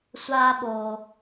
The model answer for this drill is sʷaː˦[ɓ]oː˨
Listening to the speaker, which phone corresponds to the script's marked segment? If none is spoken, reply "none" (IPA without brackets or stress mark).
ɓ